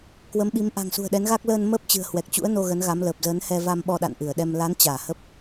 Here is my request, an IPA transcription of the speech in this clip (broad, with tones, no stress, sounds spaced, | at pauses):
k w ə˨˦ m ɓ i˨˦ m ʔ a̤˨˩ ŋ s ṳ˨˩ ə̯ ɗ ɛ˨˦ n ɣ aː˦˥ k̚ l əː˧ n m əː˦˥ p̚ t͡ɕ ɨ̤˨˩ ə̯ h w ɛ˨˩ k̚ t͡ɕ ṵ˧˥ ə̯ n o˧ ɣ ə˨˦ n ɣ a˨˦ m l əː˨˩ p̚ z ə˨˦ n h ɛ˧ v a˧ m ɓ ɔ˧ ɗ a̰˧˨ n ʔ ɨ˧˩ ə̯ ɗ ɛ˧ m l a˨˦ n t͡ɕ aː˧˩ h ə˦˥ p̚